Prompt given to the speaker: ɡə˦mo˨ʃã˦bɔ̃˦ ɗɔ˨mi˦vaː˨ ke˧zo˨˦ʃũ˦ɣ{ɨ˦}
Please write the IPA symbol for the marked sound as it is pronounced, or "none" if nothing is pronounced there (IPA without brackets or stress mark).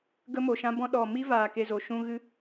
ɨ˦